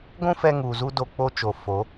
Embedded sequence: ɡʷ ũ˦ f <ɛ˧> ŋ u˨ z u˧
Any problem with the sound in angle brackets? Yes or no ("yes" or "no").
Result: no